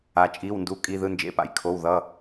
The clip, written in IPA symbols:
a˩t͡ʃʼi˩˧˩wndu˩˧˩ kʼi˩˧˩ðɯ˩˧˩nd͡ʒḛ˩˧˩pa̰˩j kʰo˩˧˩wðʌ˩˧˩

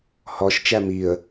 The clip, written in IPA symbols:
hɔʃ t͡ʃæmiə̯

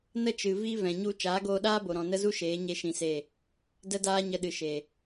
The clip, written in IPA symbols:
nə˦t͡ʃɨ˨ vi˦ vɛ̃˨ɲu˧ t͡ʃaː˨˦ɡoː˧ɗaː˦bo˨ ɾɔ̃˨nə˦zu˦ ʃeː˨˦ ɲe˦ʃĩ˧se˦˨ | də˦daː˦ ɲə˧ɗɨ˨ʃe˨

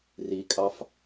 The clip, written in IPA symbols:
rikʼɑf

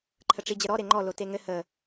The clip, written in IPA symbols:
ǃʰəʈ͡ʂid͡ʑəɾɔ ɾeŋ͡ǃɔ loteŋɘ hə

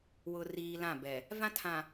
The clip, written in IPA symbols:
wʊ˨riː˨ lã˦˨bɛ˨ | vã˦tʰã˨

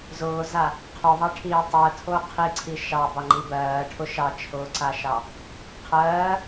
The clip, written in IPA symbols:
zʊːza | qʰoðˤɑʈʰiː tˤɜtʰo qʰiǀʰi ʃɑbɑŋ͡ǃi bɜːʈʰʊ ʃɑt͡ʃʰʊːǀaʃɑ | qʰɜː

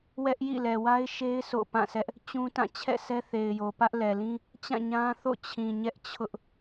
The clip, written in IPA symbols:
wɛ˦ʔjḭ˦˨ lɛ˨wa˦ɪ̯ʃe˦ɪ̯ sʰo̰˦˨pã˦˨sʰɛ˦ʔ | t͡ɕũ˦tã˦˨ t͡ɕʰɛ̰˦˨sʰɛ˦θe˨ɪ̯jo˨ pä˦ʔlɛ˨lĩ˦ | t͡ɕã˦˨ ɲã˦ θo̰˦˨t͡ɕʰĩ˨ɲɛ˦ʔ t͡ɕʰʊ˦ʔ

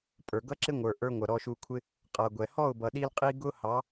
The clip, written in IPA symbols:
pʼə˞˨ɡʌ˦ǁɪ˦ŋʷə˞˨ ʔə˞˧ ŋʷʌ˨ɾɔ˧ʃu˧kʷʰɪ˦ | qʼʌ˨ɡʷɛ˨ hɔ˦˨ʊ̯bʌ˨ɗi˧l qʼi˦ ɡʊ˦hɑ˨˦

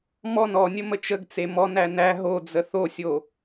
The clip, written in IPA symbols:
mɔn ɔnʲə mət͡ʃəɡt͡se mɔnæ næ ɦod͡zə θosʲo

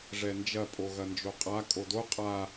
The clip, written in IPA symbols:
ʐɛnd͡ʒɐ pʼoɣɐnd͡ʒoqʼa kʼodo qʼa

